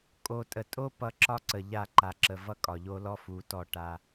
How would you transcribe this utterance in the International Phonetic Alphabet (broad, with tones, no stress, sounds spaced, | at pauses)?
kʼ o˨ tʼ ə˨ tʼ o˦ p ʌ˦ ǁ ɒ˦ ǀ ə˨ ʎ a˦˨ ǃ a˨ ǁ ə˨ v ʌ˦ kʼ ɒ˨ ʎ o˦ l ɔ˦ f u˨˦ t ɔ˦˨ ʈ a˦